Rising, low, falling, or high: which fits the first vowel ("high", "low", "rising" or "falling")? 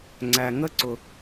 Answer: low